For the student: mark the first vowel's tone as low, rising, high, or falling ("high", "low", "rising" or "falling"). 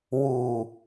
low